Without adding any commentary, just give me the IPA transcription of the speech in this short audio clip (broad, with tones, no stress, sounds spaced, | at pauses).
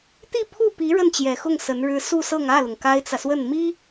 t̪ i˥˧ pʰ u˥˩ p i˧˥ ɻ ə˥˩ n t͡ɕ j ɛ˨˩ x ʊ˥˩ ŋ s ə˧˥ n ɻ ɻ̩˥ s u˥˧ s ɤ˥˧ ŋ ä˥˩ l ʊ˩ ŋ k a˥ ɪ̯ t͡s ä˨ s w ə˥˩ n m i˥